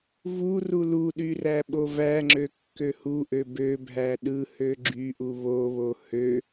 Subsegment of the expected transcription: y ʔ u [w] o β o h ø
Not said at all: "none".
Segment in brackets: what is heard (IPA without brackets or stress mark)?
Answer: β